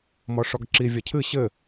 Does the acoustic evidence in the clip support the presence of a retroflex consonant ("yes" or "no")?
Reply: yes